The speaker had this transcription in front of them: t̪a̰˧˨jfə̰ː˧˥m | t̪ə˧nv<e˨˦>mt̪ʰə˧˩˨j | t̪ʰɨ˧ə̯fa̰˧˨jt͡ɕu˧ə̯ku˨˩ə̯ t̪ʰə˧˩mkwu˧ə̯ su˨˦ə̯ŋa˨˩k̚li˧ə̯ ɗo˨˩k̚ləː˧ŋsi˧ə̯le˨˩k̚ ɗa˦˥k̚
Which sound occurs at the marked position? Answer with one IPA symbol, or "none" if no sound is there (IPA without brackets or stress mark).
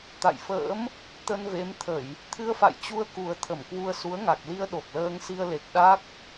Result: e˨˦